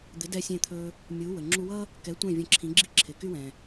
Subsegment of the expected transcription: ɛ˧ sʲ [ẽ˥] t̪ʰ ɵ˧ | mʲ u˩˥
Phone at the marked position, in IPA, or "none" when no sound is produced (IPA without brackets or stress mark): ẽ˧